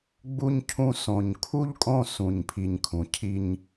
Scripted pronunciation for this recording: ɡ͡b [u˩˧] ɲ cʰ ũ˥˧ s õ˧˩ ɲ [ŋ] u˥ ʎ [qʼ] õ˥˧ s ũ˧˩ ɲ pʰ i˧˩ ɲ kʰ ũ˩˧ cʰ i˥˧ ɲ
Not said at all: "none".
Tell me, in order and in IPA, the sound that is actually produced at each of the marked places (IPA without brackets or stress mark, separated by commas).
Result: u˥˧, kʰ, kʼ